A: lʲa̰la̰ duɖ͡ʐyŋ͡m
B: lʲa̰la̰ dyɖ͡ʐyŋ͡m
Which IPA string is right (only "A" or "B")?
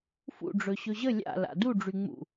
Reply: A